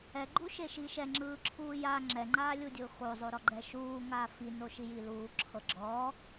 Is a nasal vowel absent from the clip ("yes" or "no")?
yes